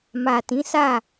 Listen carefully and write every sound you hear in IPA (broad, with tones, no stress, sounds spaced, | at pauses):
m a˨ t ĩ˨˦ s a˦˨